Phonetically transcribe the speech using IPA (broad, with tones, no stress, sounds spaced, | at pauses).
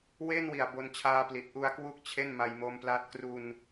w e˥˩ n w i˨˩ a̯ b o˧ n t͡ɕʰ aː˦˥ p l i˨˩ t̚ ʔ u˧ a̯ k w u˥˩ k̚ t͡ɕʰ e˥˩ n m a˧ j m o˦˥ m p l a˦˥ t̚ k r u˧ n